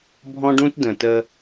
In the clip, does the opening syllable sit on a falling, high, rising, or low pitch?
high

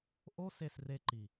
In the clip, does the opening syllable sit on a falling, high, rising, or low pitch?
high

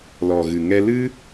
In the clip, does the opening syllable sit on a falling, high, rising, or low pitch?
low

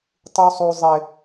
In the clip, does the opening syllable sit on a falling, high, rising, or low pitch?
high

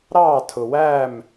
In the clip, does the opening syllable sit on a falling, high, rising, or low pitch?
falling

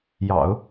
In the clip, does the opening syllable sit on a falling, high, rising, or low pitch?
low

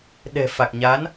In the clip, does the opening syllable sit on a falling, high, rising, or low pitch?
low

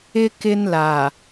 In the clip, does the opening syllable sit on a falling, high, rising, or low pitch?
high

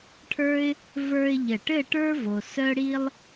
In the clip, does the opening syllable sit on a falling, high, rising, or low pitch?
high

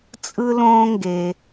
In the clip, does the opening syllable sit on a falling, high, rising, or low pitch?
high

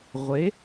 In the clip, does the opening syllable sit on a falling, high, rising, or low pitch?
rising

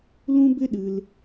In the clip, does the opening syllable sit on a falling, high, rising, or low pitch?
high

